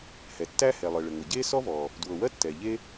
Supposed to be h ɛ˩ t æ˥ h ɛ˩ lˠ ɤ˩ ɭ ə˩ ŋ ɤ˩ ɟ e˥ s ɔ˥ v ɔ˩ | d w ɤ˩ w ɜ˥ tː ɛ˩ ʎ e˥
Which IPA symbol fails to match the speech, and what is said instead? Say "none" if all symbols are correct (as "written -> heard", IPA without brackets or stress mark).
t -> tː